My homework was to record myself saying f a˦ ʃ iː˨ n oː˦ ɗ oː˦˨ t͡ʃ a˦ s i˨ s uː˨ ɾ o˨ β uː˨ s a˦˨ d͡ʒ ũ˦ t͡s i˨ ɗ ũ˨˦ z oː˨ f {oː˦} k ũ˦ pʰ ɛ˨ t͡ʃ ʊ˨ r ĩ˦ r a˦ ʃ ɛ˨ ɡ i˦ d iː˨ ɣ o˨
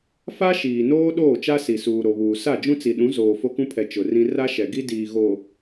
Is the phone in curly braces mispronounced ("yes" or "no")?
yes